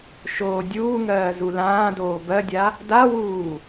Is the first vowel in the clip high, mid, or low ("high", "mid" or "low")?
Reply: mid